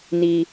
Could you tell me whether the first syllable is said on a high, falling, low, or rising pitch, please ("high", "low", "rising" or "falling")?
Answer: low